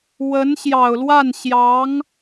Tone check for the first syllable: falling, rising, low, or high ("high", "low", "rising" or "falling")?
rising